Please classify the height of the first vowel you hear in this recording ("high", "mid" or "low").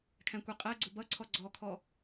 low